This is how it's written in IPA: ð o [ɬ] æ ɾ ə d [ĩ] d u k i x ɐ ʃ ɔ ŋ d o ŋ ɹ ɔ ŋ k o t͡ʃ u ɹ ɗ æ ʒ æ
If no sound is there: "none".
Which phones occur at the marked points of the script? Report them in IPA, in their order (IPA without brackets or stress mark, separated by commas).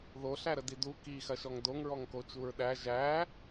ɬ, i